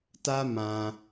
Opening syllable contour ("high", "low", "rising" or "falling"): high